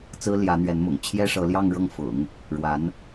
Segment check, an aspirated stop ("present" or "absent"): present